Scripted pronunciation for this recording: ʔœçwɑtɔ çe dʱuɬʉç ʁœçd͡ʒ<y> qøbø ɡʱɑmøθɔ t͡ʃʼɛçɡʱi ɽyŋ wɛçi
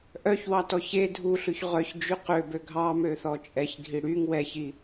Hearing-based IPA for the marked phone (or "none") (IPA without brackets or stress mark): y